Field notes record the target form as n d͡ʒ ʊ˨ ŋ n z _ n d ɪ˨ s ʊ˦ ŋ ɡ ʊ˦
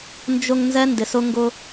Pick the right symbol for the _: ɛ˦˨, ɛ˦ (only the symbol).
ɛ˦